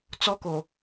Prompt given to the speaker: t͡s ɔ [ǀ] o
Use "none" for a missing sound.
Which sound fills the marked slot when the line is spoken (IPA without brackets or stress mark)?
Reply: k